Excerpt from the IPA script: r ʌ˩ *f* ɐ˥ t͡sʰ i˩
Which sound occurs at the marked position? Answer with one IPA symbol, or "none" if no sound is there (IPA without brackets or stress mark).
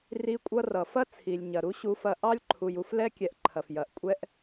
f